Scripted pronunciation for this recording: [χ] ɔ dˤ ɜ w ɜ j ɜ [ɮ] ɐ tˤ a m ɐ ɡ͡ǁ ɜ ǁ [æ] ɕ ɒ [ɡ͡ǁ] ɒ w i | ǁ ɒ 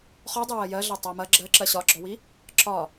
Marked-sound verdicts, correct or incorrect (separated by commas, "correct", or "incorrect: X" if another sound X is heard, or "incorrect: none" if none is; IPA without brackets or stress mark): correct, correct, incorrect: ɜ, correct